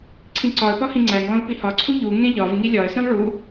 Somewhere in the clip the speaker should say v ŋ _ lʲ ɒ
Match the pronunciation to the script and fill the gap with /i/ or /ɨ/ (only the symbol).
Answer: i